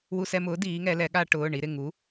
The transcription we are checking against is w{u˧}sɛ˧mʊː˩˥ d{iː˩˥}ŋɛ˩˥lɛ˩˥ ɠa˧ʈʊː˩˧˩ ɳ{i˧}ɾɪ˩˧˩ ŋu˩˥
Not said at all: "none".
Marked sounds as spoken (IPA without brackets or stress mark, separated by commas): u˧, iː˩˥, i˧